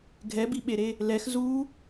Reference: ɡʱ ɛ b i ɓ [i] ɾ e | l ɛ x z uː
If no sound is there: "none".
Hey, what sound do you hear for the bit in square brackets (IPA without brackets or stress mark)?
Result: e